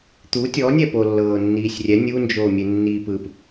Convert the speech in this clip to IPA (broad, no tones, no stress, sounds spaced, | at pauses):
t̪ u tʲ ɔ nʲ ɛ p o lː ɤː nː iː sʲ rʲ ɛ nʲ u n d͡ʒ oː mʲ e nː iː p ɯ p